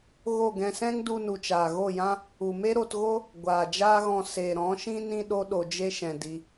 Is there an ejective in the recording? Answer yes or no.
no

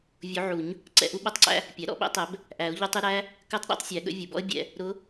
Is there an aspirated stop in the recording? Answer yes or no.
no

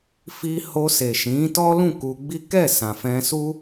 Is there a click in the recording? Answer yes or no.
no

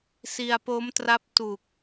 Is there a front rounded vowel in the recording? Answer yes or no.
no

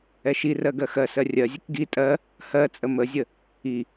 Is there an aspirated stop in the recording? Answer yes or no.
no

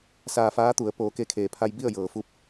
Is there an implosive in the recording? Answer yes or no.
no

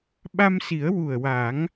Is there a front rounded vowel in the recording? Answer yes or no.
no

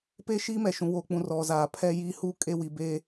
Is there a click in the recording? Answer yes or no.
no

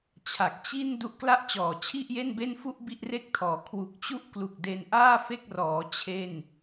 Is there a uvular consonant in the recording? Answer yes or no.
no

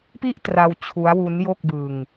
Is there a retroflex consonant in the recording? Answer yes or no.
no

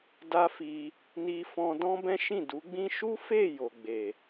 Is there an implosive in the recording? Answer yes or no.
no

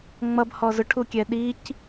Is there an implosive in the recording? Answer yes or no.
yes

